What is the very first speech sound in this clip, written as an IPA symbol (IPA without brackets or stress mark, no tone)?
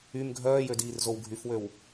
y